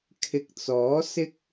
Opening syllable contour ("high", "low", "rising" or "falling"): rising